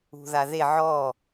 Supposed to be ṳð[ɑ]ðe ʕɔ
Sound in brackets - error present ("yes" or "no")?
yes